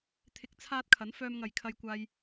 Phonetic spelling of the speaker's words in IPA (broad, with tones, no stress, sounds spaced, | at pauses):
t̪ʰ ɪ˨˥ k̚ t͡sʰ aː˧ t̚ kʰ ɐ˨˥ n f œː˧ m ŋ ɐ˨ j kʰ ɐ˧ j kʷ aː˧ j